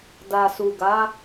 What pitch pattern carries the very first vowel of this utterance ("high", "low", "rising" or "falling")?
low